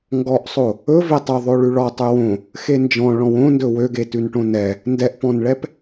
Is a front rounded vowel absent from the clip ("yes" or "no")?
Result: no